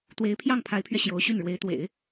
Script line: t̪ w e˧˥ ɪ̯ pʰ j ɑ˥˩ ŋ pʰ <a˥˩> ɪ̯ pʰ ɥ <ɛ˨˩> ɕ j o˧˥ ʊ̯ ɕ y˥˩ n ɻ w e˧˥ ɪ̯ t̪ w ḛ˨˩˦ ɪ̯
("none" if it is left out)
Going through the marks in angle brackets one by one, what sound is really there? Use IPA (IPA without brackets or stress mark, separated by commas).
a˧˥, ɛ˧